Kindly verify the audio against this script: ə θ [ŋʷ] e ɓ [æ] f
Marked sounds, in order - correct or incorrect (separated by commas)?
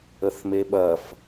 incorrect, incorrect